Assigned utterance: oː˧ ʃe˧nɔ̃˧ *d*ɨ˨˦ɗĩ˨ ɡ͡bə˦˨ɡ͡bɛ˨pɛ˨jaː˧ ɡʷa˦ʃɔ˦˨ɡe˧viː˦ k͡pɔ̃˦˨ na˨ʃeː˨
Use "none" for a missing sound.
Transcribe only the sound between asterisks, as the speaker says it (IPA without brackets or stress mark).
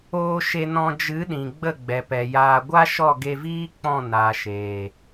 d͡ʒ